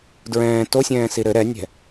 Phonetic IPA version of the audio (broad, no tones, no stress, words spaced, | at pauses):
dɹɛ̃ː tosʲɛ̃ːsi ɾɘ ɾɛnʲɛ̤